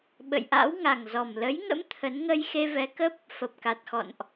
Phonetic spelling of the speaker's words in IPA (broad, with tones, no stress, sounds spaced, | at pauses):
ɓ ə̰˧˨ j ʔ a̰˧˥ w ŋ a˨˩ ŋ z ɔ˨˩ m l ə˨˦ j ŋ ə̰˧˥ m t̪ʰ ə˨˦ n ŋ ə˧ j x e˧ v ɛ˨˦ k ə˦˥ p̚ | f ə˨˩ p̚ k a˨˩ t̚ x ɔ̰˧˨ n ʔ